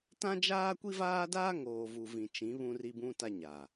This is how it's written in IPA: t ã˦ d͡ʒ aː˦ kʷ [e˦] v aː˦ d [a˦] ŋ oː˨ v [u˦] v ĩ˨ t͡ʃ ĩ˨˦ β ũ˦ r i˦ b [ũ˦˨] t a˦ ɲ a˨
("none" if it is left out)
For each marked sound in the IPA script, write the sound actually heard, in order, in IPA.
i˦, aː˦, u˨, ũ˦

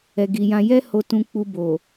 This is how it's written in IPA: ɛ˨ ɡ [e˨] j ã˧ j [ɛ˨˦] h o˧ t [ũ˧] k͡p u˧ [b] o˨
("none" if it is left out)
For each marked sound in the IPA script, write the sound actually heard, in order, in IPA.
i˨, ɛ˦, ũ˧, b

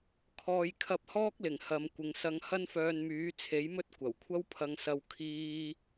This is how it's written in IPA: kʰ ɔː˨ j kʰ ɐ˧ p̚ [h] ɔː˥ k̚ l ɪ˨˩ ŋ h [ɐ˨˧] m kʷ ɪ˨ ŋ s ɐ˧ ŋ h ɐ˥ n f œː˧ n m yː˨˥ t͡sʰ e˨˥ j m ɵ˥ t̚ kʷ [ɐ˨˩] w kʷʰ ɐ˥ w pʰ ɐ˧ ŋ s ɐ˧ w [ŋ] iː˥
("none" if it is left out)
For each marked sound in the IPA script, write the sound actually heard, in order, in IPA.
h, ɐ˨˧, ɐ˨˩, kʰ

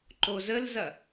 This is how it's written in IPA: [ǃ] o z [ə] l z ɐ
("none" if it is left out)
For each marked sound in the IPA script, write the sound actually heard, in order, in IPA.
ǃ, ə

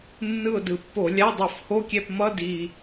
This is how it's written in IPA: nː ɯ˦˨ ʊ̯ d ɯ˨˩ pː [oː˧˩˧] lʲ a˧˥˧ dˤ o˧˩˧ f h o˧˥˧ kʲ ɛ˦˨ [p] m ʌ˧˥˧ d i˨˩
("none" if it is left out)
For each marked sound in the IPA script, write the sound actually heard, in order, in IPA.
o˧˩˧, p

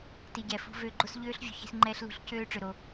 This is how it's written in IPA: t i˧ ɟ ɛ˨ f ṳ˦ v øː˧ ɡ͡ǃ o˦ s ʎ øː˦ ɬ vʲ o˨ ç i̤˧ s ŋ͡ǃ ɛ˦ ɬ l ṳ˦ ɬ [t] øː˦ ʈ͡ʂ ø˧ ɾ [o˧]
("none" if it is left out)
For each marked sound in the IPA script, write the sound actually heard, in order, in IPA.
c, o˧

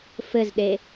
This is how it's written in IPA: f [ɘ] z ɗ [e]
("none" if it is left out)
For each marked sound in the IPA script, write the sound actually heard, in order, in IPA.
ɘ, e

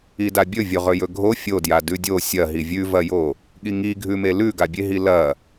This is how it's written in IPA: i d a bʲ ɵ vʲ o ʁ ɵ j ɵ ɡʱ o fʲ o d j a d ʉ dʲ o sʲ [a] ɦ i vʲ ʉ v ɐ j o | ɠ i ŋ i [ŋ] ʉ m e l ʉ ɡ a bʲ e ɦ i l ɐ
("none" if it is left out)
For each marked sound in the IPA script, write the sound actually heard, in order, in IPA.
ɐ, ɡʱ

